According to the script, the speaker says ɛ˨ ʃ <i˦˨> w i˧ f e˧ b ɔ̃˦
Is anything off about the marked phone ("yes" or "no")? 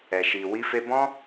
yes